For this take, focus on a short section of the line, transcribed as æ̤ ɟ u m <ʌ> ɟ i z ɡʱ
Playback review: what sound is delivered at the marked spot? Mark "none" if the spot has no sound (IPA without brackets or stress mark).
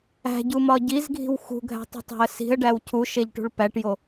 ɒ